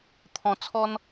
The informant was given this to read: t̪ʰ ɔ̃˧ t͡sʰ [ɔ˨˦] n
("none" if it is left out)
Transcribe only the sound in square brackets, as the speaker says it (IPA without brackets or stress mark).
ɔ˦